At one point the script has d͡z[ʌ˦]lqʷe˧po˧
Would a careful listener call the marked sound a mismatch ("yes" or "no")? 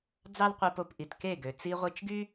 yes